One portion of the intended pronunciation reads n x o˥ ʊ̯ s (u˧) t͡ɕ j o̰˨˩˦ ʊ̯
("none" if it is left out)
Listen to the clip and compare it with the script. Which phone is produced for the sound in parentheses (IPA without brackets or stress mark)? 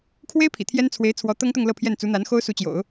u˧˥